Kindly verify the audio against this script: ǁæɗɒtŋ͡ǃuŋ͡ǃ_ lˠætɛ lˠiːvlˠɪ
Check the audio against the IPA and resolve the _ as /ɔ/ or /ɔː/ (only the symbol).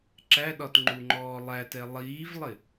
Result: ɔː